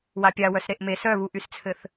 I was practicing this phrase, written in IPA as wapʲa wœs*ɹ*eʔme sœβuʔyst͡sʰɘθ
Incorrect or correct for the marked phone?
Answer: incorrect: ɾ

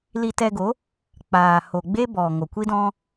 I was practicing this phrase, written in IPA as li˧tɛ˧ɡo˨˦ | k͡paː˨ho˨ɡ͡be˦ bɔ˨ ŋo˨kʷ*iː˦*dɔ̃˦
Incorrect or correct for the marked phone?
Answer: incorrect: i˦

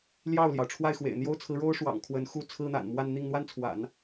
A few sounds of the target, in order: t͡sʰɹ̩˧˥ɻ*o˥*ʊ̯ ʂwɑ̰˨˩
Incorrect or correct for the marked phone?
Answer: correct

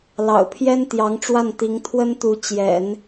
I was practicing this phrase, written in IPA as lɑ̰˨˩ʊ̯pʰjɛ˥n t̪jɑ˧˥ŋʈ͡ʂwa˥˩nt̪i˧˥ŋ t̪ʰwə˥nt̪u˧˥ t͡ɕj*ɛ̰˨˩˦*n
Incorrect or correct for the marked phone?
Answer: correct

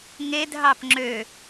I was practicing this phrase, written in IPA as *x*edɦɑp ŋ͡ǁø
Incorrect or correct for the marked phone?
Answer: incorrect: ŋ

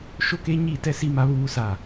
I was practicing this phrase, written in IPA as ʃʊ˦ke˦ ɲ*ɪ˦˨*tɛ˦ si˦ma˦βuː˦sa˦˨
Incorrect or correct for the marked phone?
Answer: incorrect: i˦˨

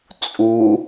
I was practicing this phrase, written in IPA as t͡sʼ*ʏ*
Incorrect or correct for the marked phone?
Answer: incorrect: u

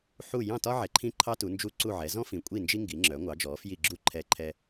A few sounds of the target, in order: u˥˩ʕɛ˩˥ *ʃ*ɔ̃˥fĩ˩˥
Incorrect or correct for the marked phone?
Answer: incorrect: z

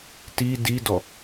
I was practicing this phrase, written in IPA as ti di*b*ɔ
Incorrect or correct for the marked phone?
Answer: incorrect: d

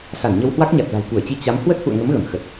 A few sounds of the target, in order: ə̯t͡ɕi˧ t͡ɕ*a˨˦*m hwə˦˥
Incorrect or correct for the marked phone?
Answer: correct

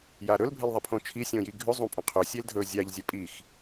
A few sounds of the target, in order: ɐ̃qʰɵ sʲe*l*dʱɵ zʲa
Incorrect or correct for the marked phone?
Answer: correct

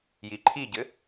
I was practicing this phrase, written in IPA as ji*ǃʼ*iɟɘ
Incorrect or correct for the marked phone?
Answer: incorrect: ǃʰ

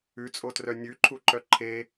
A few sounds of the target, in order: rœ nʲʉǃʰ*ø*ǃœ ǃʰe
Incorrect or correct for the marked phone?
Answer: incorrect: u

